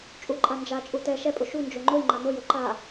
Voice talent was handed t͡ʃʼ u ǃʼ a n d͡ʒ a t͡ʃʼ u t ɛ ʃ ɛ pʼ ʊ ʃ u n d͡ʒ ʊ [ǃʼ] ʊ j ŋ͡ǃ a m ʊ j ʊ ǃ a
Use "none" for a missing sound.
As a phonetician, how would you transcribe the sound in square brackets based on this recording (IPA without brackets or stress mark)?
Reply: ŋ͡ǃ